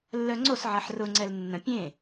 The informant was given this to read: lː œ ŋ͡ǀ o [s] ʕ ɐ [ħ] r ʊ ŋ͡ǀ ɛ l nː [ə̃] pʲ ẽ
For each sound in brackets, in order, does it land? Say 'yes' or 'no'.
yes, yes, yes

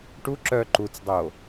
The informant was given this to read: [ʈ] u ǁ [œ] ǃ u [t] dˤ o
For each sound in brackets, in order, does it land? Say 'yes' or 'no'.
yes, yes, no

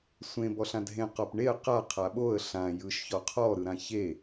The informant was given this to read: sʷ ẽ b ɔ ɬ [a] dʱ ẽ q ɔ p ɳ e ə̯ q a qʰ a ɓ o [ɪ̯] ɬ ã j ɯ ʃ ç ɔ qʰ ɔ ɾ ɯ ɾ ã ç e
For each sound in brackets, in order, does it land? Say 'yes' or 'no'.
no, no

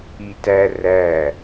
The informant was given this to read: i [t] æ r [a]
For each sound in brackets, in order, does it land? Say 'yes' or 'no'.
yes, no

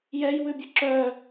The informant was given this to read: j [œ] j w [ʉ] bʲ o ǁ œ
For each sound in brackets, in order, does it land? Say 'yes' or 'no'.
no, yes

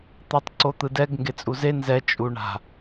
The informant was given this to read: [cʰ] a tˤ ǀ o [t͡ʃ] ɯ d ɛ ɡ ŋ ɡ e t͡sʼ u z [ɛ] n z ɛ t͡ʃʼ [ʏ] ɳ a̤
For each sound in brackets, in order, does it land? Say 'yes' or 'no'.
no, no, no, no

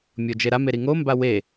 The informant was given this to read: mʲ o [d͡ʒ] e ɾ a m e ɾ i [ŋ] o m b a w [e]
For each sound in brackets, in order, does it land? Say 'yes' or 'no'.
yes, yes, yes

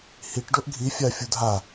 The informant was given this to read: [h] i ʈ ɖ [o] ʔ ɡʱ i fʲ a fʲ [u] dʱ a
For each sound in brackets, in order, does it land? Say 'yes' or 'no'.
yes, yes, yes

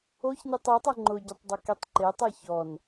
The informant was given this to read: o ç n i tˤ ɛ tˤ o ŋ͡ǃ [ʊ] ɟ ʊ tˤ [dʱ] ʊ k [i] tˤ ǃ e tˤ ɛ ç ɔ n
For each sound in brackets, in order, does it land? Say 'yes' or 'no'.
yes, no, yes

